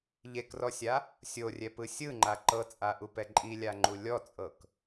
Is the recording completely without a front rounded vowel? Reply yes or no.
yes